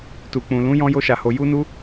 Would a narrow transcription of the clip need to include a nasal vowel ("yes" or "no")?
yes